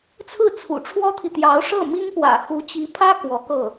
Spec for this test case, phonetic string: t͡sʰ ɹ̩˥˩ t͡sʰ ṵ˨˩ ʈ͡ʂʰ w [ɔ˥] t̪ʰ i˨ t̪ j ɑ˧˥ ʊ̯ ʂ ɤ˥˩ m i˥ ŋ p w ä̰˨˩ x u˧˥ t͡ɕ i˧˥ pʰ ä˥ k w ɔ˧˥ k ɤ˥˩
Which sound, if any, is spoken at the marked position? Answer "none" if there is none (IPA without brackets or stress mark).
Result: ɔ˥